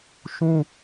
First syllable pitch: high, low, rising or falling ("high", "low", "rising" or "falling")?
high